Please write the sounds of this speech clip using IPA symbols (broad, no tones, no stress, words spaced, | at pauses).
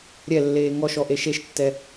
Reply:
ɾʲɛlːeː ŋɔʃɔ ʔeʃeʃtːɛ